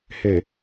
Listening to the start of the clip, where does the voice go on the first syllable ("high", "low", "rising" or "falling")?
low